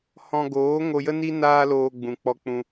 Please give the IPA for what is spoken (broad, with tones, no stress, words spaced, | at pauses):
hɔ̃˧ ɡoː˨˦ ŋo˧jə˦ni˦ naː˧loː˨ ɡ͡bũ˨k͡pɔ˦k͡pũ˦